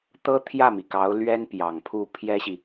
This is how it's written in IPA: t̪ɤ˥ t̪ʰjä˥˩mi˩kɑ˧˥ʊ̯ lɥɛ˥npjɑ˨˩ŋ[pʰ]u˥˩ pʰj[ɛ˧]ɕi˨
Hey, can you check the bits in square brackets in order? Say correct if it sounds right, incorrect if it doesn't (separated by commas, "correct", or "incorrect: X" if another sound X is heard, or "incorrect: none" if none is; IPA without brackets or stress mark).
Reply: correct, incorrect: ɛ˥